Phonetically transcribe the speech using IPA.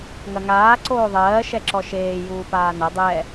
ŋɐŋaː ǀoːðˤɜː ʃɛǁɔʃeː juːpaːnɐ dˤɛ

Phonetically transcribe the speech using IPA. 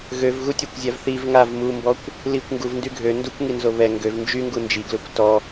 ɣøvɣutʲakʷzʲav θiv ŋav mumbɔkʷ | likʷ ŋɡuvndy ɡʱø ndukʷŋinzo βɛ ŋɡøv nd͡ʒyŋɡu nd͡ʒiɡløkʷ tɔ

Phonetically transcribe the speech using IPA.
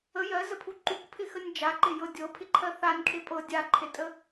ə jɜzəpʰu ǃukpʰɪxənʲ d͡ʒaǃɪjɤ dʲɤpʰɪǃʰɜ θanʲkʰe pʼɤ dʲaǃʰetʼə

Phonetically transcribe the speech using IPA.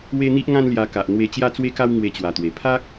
we˦n̪i˦ʔŋã˦nlja˧ ka˨ʔ n̪we˧ t͡ɕja˦t͡swe˦ka˦w ŋwe˧t͡ɕwa˨˩t̪we˨˩ pʰa˦k̚

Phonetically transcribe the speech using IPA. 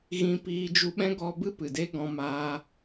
ɣĩ˧piː˧ d͡ʒu˧ɓɛ̃˦ɡɔ˧bɨ˦ pɨ˨de˦ ɡɔ̃˧maː˧

